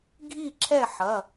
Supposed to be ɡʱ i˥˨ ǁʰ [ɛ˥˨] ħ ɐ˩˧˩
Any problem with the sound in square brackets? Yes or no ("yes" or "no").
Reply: no